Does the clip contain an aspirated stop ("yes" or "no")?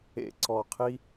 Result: yes